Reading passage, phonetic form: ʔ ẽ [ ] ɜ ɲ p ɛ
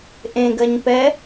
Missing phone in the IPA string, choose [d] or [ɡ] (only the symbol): ɡ